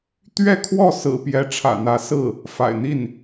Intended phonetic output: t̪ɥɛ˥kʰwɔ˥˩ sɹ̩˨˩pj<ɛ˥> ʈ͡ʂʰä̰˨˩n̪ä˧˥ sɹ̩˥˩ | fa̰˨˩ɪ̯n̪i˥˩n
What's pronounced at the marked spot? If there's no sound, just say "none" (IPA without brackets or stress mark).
ɛ˧˥